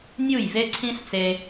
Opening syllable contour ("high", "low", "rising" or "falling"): falling